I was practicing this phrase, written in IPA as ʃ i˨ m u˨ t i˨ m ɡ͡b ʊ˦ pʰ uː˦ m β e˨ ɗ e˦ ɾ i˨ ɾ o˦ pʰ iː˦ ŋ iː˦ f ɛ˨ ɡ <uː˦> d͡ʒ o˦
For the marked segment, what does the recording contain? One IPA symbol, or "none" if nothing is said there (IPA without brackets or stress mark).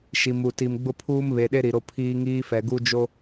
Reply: u˦